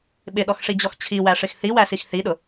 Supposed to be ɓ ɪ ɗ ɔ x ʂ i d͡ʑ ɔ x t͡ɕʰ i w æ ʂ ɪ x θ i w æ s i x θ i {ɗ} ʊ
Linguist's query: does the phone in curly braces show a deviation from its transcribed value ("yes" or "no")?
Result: no